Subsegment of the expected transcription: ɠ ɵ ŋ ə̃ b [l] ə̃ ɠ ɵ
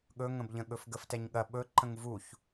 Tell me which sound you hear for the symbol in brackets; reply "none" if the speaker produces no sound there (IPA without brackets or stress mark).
ʎ